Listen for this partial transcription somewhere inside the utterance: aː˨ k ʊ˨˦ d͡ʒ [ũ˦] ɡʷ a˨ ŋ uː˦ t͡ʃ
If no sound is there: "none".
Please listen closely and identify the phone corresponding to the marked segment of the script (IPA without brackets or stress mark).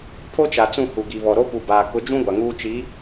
ũ˦